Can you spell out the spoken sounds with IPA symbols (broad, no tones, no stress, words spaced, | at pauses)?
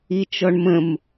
it͡ʃɔɳmə̃m